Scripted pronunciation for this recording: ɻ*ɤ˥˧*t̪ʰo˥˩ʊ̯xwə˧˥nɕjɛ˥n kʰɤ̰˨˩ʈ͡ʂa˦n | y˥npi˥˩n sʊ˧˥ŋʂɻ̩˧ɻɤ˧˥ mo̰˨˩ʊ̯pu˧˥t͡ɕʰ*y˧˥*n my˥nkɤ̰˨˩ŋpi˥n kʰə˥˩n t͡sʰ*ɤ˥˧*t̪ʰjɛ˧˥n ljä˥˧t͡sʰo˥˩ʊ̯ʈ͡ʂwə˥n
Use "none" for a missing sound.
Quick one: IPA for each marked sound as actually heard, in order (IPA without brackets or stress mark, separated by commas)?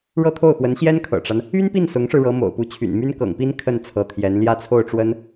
ɤ˥˧, y̰˨˩, ɤ˧˥